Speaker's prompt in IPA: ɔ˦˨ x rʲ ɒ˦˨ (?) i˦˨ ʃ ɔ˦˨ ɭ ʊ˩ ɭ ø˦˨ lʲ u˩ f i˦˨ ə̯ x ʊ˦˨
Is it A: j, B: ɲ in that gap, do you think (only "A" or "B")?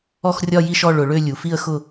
A